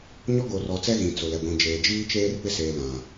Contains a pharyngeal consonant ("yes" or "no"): no